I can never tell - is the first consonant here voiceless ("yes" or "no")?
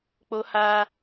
yes